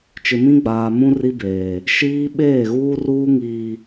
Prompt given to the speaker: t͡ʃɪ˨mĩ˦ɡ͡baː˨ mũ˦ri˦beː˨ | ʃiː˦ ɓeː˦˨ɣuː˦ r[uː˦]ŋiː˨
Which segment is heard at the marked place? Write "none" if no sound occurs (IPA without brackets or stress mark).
uː˦